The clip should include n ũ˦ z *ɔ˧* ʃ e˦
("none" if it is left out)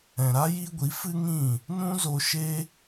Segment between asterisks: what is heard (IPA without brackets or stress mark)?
o˧